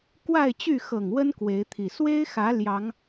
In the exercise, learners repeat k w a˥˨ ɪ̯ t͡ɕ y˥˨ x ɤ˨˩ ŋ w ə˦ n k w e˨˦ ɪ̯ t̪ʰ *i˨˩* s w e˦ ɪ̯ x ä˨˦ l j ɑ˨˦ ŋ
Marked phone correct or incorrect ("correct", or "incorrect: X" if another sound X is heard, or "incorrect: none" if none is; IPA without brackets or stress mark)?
correct